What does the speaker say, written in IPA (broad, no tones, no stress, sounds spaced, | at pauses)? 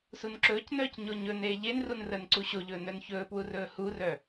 s u n ǁ ɵː c n œː c ɲ o ɲ ɵ n eː ʎ e n r u n r əː n ǀ u ɕ o ʎ ɵː n œ n ç ɵː p w u r ɵː h u r œ